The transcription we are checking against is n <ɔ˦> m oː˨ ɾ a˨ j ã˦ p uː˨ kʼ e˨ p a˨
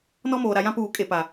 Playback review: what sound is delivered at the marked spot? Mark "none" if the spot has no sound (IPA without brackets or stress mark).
ɔ˦